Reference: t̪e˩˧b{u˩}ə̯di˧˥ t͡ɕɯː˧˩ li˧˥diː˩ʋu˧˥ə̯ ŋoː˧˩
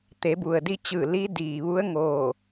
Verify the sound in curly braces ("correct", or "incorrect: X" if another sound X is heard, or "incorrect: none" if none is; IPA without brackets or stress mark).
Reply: correct